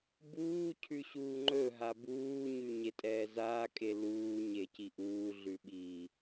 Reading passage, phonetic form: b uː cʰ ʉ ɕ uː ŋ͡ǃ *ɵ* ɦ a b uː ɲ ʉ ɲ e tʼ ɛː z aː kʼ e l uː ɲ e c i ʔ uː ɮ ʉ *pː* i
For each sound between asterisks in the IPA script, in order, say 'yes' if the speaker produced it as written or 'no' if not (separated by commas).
yes, no